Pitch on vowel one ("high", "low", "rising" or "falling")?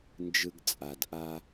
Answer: high